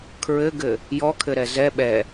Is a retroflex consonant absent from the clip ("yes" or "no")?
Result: yes